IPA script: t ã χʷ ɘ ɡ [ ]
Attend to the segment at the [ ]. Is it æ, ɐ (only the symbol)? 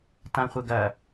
ɐ